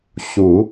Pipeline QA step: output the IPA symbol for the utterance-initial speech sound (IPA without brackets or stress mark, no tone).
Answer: ɕ